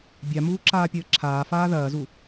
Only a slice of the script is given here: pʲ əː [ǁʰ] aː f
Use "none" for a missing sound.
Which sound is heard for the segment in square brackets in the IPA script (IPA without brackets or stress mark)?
ǁʰ